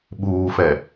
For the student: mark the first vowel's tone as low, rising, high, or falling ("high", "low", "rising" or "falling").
low